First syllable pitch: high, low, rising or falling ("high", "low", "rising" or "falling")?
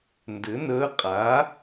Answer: rising